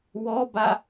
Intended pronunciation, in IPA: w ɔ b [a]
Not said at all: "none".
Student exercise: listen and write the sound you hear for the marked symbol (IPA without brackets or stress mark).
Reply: a